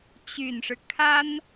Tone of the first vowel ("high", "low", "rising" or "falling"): low